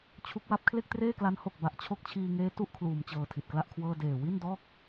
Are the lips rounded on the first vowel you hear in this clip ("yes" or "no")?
yes